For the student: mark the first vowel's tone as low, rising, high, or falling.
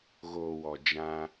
low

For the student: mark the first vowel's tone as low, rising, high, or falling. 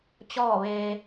falling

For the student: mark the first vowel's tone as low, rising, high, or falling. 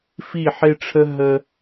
falling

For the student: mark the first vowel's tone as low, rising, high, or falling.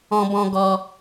high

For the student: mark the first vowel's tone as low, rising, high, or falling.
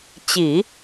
low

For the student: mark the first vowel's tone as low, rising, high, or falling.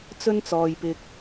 high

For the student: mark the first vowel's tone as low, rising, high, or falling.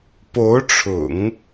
rising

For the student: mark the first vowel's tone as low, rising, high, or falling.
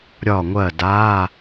falling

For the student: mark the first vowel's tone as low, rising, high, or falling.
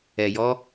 low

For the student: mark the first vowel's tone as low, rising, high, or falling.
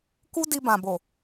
high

